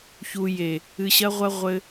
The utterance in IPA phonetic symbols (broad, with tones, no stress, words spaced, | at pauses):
çu˨je˨ | ɨ˨ɕɐ˧ʁʷɐ˧ ʁʷɘ˧